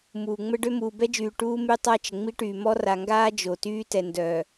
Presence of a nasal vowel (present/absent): absent